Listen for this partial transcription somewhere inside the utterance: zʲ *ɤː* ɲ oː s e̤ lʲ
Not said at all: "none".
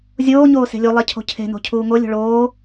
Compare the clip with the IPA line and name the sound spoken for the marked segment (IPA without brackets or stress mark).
oː